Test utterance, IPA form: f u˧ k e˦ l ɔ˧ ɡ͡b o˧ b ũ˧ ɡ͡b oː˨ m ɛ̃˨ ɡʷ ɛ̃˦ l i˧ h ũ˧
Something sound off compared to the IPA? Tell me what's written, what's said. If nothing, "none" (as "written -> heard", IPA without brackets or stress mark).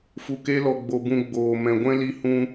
none